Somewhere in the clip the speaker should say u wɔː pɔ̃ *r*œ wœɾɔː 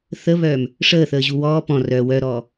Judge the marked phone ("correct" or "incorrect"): correct